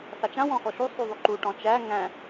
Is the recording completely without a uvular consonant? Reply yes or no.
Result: yes